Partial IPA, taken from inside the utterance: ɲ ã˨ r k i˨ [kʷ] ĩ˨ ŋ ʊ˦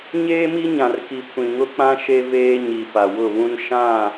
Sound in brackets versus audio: correct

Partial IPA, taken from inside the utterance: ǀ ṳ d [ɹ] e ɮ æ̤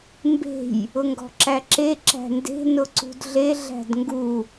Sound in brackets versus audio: incorrect: ɮ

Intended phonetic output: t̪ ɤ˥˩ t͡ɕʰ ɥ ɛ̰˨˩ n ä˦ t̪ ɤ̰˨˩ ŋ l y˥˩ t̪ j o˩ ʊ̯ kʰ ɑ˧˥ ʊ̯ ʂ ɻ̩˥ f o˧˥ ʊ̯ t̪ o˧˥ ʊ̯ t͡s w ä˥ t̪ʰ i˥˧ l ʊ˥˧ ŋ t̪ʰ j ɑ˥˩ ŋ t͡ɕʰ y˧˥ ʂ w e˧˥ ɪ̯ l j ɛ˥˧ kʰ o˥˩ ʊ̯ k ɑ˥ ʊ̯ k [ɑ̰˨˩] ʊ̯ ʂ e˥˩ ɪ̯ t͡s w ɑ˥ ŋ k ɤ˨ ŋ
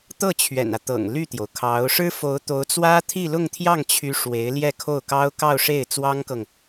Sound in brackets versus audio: incorrect: ɑ˥˧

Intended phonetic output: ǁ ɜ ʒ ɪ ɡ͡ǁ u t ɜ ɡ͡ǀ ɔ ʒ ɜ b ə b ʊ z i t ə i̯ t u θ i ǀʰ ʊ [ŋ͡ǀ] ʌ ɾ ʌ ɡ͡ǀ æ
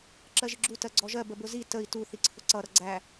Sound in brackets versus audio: incorrect: ǀ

